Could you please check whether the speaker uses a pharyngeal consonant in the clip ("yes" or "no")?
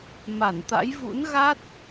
no